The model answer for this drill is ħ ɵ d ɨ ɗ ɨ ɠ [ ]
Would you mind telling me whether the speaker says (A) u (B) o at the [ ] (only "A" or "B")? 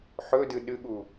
A